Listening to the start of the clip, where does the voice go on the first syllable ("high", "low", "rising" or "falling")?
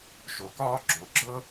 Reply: low